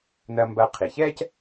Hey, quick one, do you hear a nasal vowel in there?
no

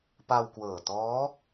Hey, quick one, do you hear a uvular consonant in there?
no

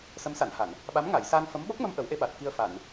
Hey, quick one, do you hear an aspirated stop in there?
no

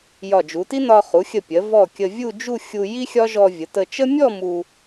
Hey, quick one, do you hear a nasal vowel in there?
no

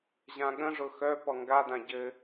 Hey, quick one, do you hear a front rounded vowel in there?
yes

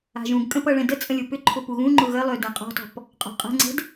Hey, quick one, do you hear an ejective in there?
yes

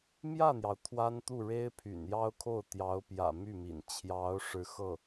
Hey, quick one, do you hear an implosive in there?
no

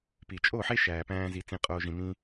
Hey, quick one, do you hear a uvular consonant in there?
yes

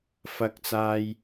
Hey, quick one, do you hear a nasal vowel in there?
no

